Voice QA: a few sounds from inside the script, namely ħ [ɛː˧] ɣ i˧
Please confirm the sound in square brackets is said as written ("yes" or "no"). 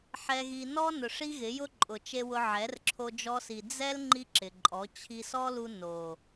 no